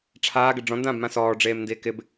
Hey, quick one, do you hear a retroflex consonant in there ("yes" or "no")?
yes